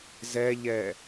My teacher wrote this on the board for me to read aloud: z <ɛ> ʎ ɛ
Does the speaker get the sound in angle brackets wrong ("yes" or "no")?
no